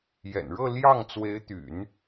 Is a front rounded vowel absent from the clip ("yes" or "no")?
no